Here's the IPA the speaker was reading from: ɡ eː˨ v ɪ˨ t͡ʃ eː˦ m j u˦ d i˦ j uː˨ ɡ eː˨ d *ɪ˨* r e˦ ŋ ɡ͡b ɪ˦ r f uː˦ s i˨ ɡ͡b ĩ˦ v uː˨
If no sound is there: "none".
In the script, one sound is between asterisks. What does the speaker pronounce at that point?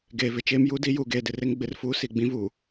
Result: ɪ˨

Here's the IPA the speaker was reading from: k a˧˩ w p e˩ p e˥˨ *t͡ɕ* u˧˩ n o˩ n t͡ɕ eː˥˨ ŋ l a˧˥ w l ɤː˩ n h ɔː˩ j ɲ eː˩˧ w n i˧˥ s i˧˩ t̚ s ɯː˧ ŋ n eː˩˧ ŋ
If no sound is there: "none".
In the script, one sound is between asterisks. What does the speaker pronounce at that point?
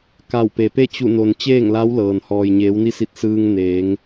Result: t͡ɕ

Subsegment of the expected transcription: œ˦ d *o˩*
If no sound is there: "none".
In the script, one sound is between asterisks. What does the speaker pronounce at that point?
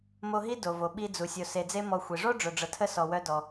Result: ɔ˩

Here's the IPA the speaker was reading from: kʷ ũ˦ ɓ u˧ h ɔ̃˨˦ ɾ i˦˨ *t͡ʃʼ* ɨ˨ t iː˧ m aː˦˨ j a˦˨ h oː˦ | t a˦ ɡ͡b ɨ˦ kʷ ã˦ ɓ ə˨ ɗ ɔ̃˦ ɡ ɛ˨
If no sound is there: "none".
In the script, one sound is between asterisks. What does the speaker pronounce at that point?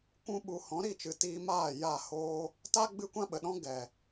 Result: t͡ʃ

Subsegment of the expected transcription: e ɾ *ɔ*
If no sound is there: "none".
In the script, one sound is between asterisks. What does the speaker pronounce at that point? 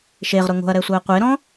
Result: ɔ̃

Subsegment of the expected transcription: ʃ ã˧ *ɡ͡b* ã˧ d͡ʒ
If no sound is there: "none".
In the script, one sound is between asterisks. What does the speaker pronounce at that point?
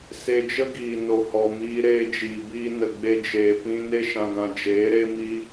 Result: ɡ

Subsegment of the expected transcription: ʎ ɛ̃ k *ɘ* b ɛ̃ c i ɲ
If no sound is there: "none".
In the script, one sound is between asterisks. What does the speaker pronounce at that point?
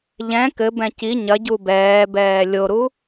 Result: ɘ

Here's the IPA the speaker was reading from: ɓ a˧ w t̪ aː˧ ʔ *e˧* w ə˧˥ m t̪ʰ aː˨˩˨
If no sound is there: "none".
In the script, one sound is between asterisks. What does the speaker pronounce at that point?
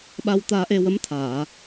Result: e˧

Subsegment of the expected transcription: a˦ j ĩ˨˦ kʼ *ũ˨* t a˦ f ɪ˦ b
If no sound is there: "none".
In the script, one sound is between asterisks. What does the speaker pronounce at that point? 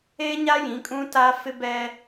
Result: ũ˦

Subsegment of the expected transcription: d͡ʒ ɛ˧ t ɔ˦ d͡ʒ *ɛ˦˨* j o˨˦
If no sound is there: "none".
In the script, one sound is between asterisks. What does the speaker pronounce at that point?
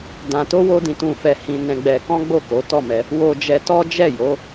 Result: ɛ˦˨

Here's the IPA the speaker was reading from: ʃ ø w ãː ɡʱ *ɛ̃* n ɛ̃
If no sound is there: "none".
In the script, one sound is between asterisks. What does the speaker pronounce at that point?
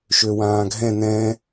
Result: ɛ̃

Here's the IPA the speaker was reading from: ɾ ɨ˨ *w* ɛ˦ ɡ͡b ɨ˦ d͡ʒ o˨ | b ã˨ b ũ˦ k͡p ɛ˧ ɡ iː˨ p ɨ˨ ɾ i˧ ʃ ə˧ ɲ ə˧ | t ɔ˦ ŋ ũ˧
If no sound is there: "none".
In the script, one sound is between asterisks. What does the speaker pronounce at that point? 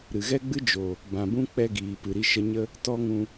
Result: ɣ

